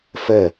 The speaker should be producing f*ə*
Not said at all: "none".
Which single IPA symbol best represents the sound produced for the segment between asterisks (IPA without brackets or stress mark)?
ə